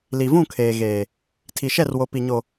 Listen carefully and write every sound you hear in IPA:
li˨vũ˦˨kʰeː˨ ɣeː˨ | tʰi˨ʃɛ˦˨rwo˨ pi˨ɲo˨

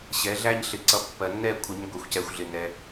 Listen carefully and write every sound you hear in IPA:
ɕɛ˨˦ɮæ˦ɲ ɬɪ˨ǀʌ˨˦ pːɜ˨nːɛ˦˨kʷʰɪ˨˦ɲ ɡʷɛ˨xʷcɛ˨xʷɮɪ˨ nɛ˨

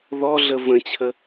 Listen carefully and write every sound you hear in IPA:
ðɔɮə və̃t͡ɕʰə

